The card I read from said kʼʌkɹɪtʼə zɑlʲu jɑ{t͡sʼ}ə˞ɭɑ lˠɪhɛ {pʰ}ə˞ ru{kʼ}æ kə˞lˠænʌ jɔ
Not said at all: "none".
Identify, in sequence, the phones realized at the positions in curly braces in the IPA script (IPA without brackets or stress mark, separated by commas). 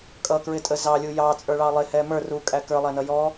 t͡sʼ, m, kʼ